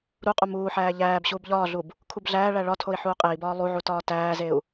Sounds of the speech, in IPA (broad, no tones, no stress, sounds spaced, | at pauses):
ɾ u qʼ u m uː ħ æː ʎ æː b ɕ uː b ʎ ɒː ɮ u b | kʰ u b ɮ æː ɭ æ ɭ ɒ tʰ o i̯ ħ uː qʼ e i̯ b ɒː lˠ u ʕ u t ɒː t æː z e u̯